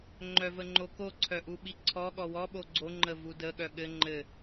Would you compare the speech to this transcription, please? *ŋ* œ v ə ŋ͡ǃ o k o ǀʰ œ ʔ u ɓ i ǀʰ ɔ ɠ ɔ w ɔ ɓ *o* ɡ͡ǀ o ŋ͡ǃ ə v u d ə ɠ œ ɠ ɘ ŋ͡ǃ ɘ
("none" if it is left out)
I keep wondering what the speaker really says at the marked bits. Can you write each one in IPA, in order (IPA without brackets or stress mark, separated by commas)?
ŋ͡ǃ, o